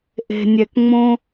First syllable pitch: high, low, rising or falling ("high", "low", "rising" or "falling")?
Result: low